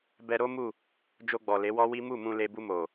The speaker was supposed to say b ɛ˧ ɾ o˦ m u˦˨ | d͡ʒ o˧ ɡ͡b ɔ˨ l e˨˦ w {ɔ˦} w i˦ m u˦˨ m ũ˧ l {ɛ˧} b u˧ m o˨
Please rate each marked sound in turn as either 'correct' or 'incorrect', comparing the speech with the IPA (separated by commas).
correct, incorrect